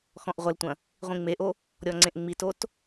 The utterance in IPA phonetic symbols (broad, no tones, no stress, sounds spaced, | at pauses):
x ɔ̃ ʔ ʁʷ ɐ l tʷ ɐ̃ | ʁʷ ĩ ŋ͡m e ʔ o | ɾʲ ɔ ŋ͡ǀ ẽ ʔ ŋ͡m i t o t